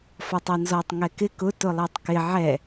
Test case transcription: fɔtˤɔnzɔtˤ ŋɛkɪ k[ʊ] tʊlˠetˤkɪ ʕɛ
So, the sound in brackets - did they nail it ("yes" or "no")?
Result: yes